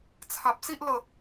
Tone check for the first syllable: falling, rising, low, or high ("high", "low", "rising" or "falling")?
low